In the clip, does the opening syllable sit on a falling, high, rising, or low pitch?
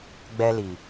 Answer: high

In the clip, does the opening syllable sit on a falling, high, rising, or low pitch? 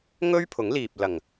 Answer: high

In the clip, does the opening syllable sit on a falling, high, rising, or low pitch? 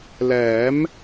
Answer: rising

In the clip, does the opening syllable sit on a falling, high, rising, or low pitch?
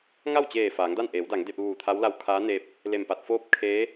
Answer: falling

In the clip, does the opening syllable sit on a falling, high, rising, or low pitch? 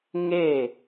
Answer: falling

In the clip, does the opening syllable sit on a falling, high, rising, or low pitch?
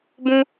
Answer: high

